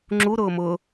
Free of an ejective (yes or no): yes